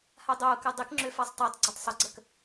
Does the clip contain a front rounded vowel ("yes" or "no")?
yes